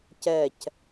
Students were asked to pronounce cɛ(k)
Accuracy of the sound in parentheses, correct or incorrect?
incorrect